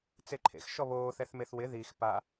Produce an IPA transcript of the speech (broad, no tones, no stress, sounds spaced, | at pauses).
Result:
t͡s e ǃʰ ḛ x ʃ ɔ β oː θ ɛ θ m e θ w ɪ ð i x p a